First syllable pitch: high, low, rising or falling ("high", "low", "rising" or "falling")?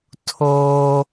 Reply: high